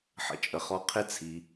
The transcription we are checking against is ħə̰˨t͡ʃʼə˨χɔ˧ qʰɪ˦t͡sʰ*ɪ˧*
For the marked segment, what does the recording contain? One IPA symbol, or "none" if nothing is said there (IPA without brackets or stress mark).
i˧